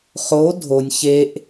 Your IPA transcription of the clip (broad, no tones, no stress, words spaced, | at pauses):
χo dʱonʲ çeʔ